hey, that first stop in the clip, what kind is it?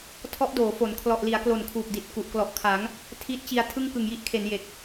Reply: aspirated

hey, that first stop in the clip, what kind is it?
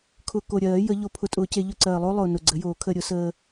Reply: aspirated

